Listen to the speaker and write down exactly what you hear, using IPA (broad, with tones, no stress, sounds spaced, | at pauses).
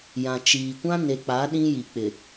j ã˨ t͡ʃ iː˨ kʷ ã˦ n e˨ k͡p a˨˦ ɗ ĩ˦ j i˨ k͡p ɪ˨